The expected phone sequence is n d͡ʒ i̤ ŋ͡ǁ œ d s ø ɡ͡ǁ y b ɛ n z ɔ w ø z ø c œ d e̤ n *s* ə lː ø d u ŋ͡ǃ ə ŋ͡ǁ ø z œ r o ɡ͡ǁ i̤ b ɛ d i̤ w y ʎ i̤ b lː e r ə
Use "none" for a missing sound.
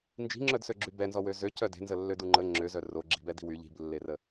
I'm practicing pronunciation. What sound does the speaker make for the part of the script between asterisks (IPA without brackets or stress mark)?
z